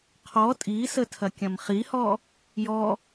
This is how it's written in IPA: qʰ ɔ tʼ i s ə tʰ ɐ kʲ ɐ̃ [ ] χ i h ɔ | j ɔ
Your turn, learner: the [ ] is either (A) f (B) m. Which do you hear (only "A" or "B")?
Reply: B